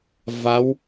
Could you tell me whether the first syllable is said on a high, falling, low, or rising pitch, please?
rising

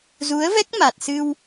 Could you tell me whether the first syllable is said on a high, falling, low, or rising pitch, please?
rising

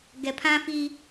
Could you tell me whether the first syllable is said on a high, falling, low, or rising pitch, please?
low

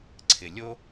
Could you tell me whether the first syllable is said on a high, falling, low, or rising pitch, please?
low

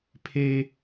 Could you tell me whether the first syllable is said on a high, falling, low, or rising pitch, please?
low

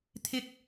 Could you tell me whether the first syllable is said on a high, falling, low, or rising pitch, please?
high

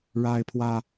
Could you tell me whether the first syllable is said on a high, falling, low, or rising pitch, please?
high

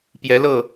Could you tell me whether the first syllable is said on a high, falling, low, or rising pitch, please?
rising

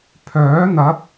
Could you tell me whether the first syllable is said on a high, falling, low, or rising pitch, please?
rising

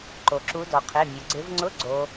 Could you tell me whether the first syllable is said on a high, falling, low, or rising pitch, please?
low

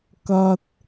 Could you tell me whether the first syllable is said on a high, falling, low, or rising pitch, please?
high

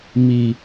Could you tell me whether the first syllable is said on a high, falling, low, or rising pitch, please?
low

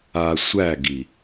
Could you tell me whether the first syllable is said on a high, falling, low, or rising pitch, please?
low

